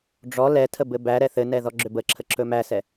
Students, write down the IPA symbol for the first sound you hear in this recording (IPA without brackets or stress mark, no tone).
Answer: ɖ͡ʐ